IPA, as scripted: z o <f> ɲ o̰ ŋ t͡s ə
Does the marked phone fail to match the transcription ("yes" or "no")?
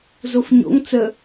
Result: no